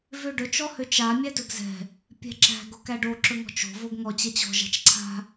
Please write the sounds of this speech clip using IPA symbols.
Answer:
v ø ɖ ɵ t͡ʃ ɔ h ø t͡ʃ a mʲ æ d ɵ ɡ z ɛ̤ | pʲ ɛ̤ ǁ æ̤ ɡ o k æ ɖ o ǁ ɵ ŋ ɔ̤ t͡ʃ o̤ v o ɡ ŋ ɔ t͡ɕ ɛ t͡ɕ ɔ̤ ʒ a̤ t͡ʃ ǀʰ a̤

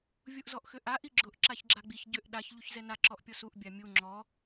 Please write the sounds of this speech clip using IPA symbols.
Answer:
vʲ u ʔ z ɔ ʔ x ʏ ʔ a ʔ i ɡ͡ǁ ʊ ʔ ǁ a ç ɡ͡ǁ a ɡ͡b i ç ɟ ʏ ʔ ɗ a ç ʎ u ç z ɛ n a ǁ ɔ ʔ pʲ ɔ s u ʔ bʲ a mʲ u ŋ͡ǁ ɔ

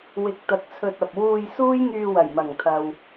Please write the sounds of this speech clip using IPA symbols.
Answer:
w ɪ˧ k̚ t̪ ɐ˧ k̚ t͡sʰ ɵ˧ t̚ ɐ˨ p̚ w uː˧ j s uː˥ j ŋ yː˧ w ɐ˨˩ j m ɐ˨˩ ŋ t̪ʰ ɐ˨ w

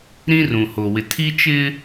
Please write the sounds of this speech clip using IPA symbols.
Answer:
ɾ ĩ˦ r ũ˨ h o˨ w ɪ˨ tʰ i˦ t͡ʃ ɪ˦

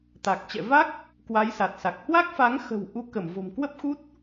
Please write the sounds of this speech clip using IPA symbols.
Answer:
t̪ a˨˩ k̚ t͡ɕ ɛ̰˧˨ v a˦˥ k̚ | k w a˨˦ j s a˨˩ t̚ s a˨˩ k̚ h w a˦˥ k̚ f a˨˦ ŋ x ə̤˨˩ w ʔ u˨˦ k ə˧˩ m v o̤˨˩ m k w ə˦˥ p̚ x u˦˥ t̚

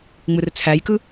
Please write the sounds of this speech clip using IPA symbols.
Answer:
ŋ͡m ɯ r t͡sʰ æ j k ɯ

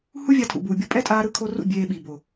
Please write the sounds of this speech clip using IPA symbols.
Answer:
h u˦ vʲ a˧ tʰ ṵ˨ b uː˨ bʲ o˧ pʼ ɛ˦ tʼ aː˧ ɾ ɯ˧ kʰ o˧ r ṵ˦˨ bʲ eː˧ ɓ i˨ b o˨

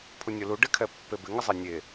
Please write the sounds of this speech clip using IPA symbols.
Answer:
pʰ u nʲ o l u ɖ ɪ kʰ ɛ pː e b ɪ ŋ ɪ zˤ e nʲ e

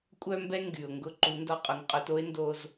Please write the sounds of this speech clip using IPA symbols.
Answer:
kʷʼ œ˥ m b ɛ˥ ŋ ɡ y˩ ʊ̯ ŋ ɡ ʊ˧ ǃ u˩˧ n d ɔ˧ qʼ ʊ˩˧ ŋ qʼ œ˩˧ t o˥ ɪ̯ n d o˧ z

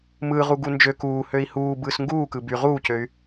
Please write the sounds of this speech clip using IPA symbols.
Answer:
m ɯː ʁ u ɡ u n d͡ʒ ø k uː h ø i̯ h uː b ɯː s ŋ ɡ uː k ɯ b y ʁ uː c ø y̯

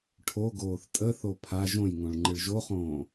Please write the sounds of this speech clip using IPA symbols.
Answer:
ʈʰ o ɡ oː θ tʼ ə θ o pʰ a ʒ õ j ŋ õ ɭ ŋ͡ǃ ɨ ɭ ʒ o χ õː

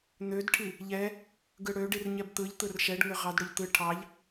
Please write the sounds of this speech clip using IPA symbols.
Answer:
n̪ ø d ʈʰ i | ʎ ɛ | ɡ ɯ ɽ ø ɖ i r ɲ ɛ b t̪ ɯ ʎ t̪ ɯ r ʃ ɛ ɖ ŋ ʏ ʁ ɑ d ɽ ʏ ʎ t̪ ɯ ʈʰ ɑ ʎ

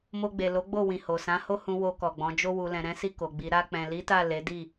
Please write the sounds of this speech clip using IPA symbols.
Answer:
m o˧ ɡ͡b e˨ l o˨˦ ɡ͡b o˦˨ w ĩ˨ h o˨ s ã˨˦ h o˦ h ũ˧ w o˧ k ɔ˨ ɡ͡b ɔ̃˨˦ d͡ʒ o˧ w u˨ l ɛ̃˨ ɾ ɛ̃˨˦ s i˦˨ k o˨ ɡ͡b i˨˦ ɾ a˧ k͡p ɛ̃˨ l i˨˦ t a˦˨ l e˨˦ d i˦˨

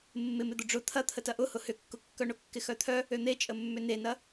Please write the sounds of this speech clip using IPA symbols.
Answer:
mː ɪ m ɪ d̪ ʊ ɖ͡ʐ ʊ t̪ʰ ɐ t̪ʰ ə t ɐ ʔ ʊ h ʊ h ʏ kː ʊ kː œ ɳ ʊ kː ɪ x œ t̪ʰ œ | ø n̪ e t͡ʃʼ ə mː ʏ n e n ɐ

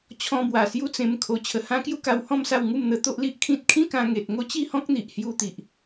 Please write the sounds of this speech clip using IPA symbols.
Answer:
t͡ɕʰ ɔ̃˧ b w a˨˩ s j u˦ t͡s ẽ˧ m kʰ o˧ t͡ɕʰ ə˨˩ h ã˦ k j u˦ k a˧ w h ɔ̃˥˧ m s a˥˧ w ŋ u˥˧ m n̪ ə˧ t̪ o˦ ʔ l i˦ ʔ kʰ ĩ˦ t̚ kʰ ĩ˦ k ã˧ ŋ e˨ t̚ ŋ o˦ t͡ɕ i˥˧ h ɔ̃˦ k̚ n̪ i˨ ʔ h j u˧ t̪ i˨ ʔ

